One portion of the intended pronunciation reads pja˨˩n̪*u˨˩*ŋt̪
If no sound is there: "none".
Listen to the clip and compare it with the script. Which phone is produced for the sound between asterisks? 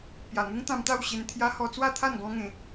u˦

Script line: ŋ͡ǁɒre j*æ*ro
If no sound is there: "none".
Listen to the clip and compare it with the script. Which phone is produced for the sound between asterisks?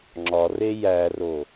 æ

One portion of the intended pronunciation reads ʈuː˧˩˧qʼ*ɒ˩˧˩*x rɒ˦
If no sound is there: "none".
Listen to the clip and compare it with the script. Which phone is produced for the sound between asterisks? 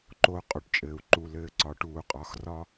ɒ˩˧˩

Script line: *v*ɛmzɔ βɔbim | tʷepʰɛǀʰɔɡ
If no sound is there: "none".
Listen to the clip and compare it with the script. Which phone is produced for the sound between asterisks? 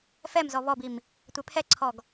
f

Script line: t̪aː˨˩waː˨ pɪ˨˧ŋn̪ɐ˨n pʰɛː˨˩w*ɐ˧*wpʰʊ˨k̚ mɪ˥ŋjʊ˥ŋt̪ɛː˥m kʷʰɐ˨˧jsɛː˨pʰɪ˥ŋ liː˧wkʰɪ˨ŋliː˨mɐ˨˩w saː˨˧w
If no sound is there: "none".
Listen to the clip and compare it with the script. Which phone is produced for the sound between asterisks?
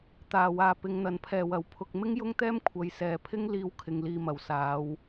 ɐ˨˩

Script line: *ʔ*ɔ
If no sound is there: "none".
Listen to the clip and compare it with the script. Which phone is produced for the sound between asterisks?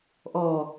ʔ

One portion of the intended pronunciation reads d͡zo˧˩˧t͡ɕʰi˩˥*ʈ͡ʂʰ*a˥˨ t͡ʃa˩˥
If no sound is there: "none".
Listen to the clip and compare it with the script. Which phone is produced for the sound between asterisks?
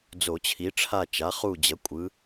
ʈ͡ʂʰ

